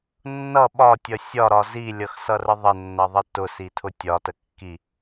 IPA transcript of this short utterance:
nː ʌ ɓ ɒ tʲ ʌ sʲ ɒ ɾ ɒ z i lʲ ʌ x s ʌ r ə ðˤ ə nː ʌ ðˤ ə t ʊ s i tʰ ʊ tʲ ɒ t ə kː i

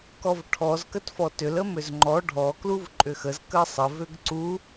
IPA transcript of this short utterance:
k ɔ v ʈʰ ɔ z k ə t f ɔ t ʏ l ə m ʏ z ŋ͡ǃ ɔ ɖʱ ɔ k l u v ǃʼ ʏ x ə z k ə sˤ ə v ʏ ɡ ǀ u

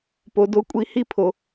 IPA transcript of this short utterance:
p o˩ d o˩˥ kʷʼ i˩˥ h i˧ pʰ o˩

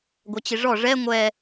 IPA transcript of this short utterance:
ɡʷ œ t͡ɕ i ʐ ɔ ʐ ɛ ŋʷ ɛ

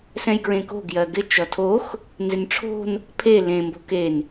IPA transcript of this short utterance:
s ɛ̃ j ɡ ɹ ẽ k o̤ ɡ j ɜ ɡ ɪ t͡ʃ ʌ tʰ o x | n z ɪ n ʈ͡ʂʰ o̤ n | pʰ e l ẽ m b o̤ k e n

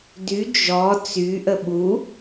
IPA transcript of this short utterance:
d y d͡ʒ ɔ t͡s y ʔ ə ɓ u

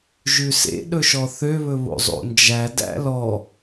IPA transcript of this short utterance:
ʒ ʉ s ḛ ɗ ɵ ʃ ɔ θ ø β ɵ β o̰ zˤ o̰ n d͡ʒ æ d æ̰ l ɔ

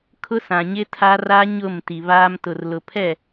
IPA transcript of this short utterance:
kʰ ʊ˦ s ã˨ ɲ ɪ˦ tʰ a˦ r a˦ ɲ ʊ˦˨ m t i˨ β aː˦ m t ʊ˨ r l ʊ˨ pʰ ɛ˦˨

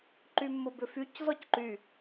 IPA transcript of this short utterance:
ǃ y mː ʊ b ʏ f y c z ɔ c ǃ y

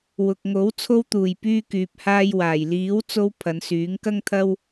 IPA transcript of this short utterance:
w ʊ˨ k̚ ŋ o˨˥ w t͡sʰ o˧ w t̪ uː˨˩ j p yː˧ k yː˨ p̚ h aː˧ j w aː˨˩ j l iː˨˥ w t͡s o˧ w pʰ ɐ˨˧ n s yː˨˥ ŋ k ɐ˥ ŋ t̪ʰ ɐ˥ w

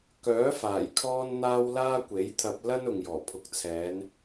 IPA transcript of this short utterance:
k œː˨˥ f aː˨˩ j kʰ ɔː˥ n n̪ aː˥ w l aː˥ kʷ e˨˥ j t̪ʰ ɐ˧ p̚ l ɐ˥ n ʊ˨ ŋ j ɔː˨˩ pʰ ʊ˨˥ k̚ t͡sʰ ɛː˨˧ n

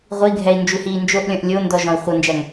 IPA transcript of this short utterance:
ʁʷ i ɡʱ ɛ i̯ n d͡ʒ u h iː n d͡ʒ o ʔ lʲ ɔ̃ ʔ lʲ o n d ɔ ʒ ɔ̃ i̯ χʷ ʌ n d͡ʒ æ ŋ

